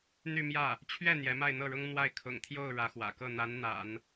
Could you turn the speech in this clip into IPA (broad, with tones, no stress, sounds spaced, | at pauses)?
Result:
n̪ y˥˧ m j ä˥˩ | t͡ɕʰ ɥ ɛ˥˩ n̪ j ɛ˧˥ m a˥˧ ɪ̯ n̪ ɤ˥˩ ɻ ʊ˥ ŋ n̪ w a˥˩ ɪ̯ kʰ ʊ̰˨˩ ŋ t̪ʰ j o˥˩ ʊ̯ ɻ ä˧˥ x w ä̰˨˩ k ɤ˥˩ n̪ a˧˥ n n̪ a̰˨˩˦ n